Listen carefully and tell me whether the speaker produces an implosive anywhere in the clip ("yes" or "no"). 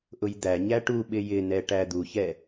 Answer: yes